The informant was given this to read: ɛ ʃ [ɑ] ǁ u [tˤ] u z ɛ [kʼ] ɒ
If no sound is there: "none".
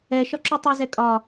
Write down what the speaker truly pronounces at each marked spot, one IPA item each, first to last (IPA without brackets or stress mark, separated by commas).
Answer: ɒ, tˤ, kʼ